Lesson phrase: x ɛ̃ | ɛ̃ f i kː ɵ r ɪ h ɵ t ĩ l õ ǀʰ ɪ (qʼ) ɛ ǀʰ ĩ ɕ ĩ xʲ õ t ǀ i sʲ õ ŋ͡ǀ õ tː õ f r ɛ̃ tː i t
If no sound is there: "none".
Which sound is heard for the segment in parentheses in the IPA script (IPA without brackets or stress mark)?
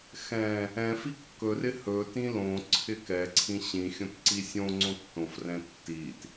k